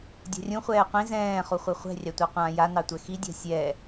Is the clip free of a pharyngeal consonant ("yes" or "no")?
yes